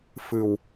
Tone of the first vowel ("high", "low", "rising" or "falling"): low